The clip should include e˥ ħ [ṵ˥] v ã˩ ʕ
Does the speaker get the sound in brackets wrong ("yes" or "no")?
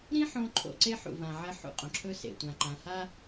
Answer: yes